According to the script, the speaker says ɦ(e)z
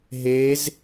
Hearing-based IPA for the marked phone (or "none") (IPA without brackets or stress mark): e